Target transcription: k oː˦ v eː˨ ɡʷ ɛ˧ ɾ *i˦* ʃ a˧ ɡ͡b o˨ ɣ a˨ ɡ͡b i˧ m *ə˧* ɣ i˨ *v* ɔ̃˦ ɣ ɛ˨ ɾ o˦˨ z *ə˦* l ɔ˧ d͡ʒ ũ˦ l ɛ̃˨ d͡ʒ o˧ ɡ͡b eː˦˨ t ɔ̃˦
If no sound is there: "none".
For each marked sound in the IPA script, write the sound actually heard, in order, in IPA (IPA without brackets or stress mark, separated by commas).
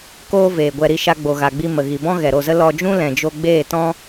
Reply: i˧, ə˨, b, ə˦